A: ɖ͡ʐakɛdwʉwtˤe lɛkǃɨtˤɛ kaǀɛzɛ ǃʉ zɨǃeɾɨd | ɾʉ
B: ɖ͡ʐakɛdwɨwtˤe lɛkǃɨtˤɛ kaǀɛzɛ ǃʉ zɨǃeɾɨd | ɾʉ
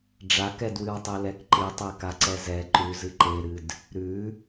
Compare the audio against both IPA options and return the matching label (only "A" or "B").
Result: B